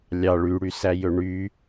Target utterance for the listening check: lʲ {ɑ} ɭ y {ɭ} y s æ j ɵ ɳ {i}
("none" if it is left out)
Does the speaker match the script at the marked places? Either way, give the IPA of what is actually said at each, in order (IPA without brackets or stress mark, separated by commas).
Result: ɑ, ɽ, y